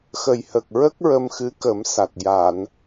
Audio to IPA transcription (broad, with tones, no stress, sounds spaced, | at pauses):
x ə˨˩ j h ə˨˩ k̚ ɹ ə˦˥ k̚ ɹ ə˧ m x ɨ˧˥ k ə˨˩˦ m s a˨˩ t̚ j a˨˩˨ n